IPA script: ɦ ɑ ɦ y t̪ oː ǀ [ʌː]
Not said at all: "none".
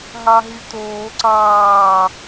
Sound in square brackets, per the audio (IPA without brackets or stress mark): ɑː